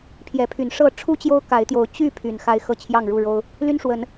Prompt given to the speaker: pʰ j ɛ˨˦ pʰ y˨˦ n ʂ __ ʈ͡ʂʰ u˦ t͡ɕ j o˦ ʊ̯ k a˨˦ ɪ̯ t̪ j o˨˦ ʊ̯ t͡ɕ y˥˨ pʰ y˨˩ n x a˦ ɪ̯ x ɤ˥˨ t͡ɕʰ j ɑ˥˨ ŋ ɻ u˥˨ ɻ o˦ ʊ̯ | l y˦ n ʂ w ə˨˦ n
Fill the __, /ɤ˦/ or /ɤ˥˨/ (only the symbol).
ɤ˥˨